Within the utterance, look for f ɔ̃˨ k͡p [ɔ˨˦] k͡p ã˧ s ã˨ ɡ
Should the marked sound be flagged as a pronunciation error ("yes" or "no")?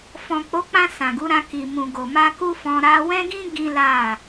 yes